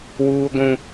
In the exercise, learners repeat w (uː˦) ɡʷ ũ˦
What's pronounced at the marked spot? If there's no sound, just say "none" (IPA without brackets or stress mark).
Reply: uː˦